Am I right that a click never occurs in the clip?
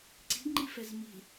no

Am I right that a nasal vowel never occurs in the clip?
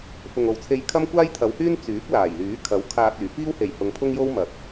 yes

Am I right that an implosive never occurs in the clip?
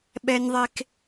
no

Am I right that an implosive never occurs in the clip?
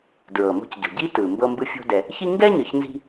yes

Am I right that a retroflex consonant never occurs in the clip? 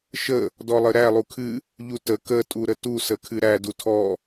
yes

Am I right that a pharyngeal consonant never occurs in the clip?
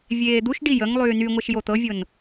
yes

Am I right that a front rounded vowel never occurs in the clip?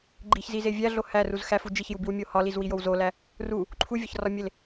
yes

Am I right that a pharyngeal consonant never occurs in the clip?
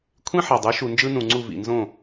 no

